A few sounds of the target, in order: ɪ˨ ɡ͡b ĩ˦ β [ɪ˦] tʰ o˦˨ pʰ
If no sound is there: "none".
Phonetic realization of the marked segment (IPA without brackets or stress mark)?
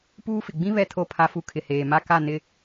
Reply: ɛ˦